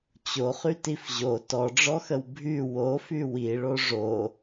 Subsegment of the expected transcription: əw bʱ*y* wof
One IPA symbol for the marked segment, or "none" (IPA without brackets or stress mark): y